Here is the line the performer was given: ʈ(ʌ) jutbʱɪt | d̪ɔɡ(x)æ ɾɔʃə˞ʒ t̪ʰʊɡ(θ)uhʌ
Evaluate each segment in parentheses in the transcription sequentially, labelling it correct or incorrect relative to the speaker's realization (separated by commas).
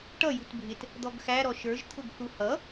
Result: correct, correct, correct